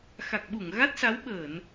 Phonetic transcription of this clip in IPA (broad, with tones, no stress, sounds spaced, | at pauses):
x a˨˩ k̚ ɓ u˧˩ ŋ ɣ a˦˥ t̚ s a˨˦ w ɓ əː˧˩˨ n